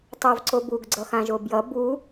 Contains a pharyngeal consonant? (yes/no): no